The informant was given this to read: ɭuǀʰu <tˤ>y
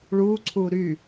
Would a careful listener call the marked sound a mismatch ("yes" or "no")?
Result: yes